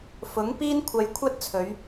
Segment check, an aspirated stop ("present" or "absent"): present